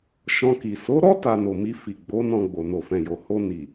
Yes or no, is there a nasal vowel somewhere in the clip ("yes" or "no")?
yes